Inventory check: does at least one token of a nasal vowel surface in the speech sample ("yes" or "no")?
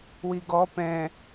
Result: yes